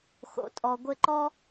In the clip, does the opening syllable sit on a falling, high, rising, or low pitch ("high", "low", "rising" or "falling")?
low